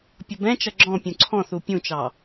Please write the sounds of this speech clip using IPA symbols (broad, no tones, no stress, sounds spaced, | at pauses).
pʲ ʌ b ɛ̃ t͡ʃ ʌ ɡ͡ǁ ɔ̃ pʲ ũ ǀʰ ɔ̃ θ u pʲ ũ t͡ʃ ɑ